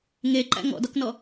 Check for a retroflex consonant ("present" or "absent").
absent